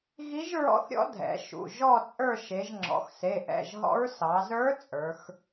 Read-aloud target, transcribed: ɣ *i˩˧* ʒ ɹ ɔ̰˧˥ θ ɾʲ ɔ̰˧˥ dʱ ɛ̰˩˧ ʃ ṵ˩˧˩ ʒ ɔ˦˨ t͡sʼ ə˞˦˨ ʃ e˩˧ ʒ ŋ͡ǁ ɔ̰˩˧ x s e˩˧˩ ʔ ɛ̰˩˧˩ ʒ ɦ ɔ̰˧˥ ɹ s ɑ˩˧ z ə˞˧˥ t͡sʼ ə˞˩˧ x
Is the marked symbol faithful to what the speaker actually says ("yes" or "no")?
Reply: no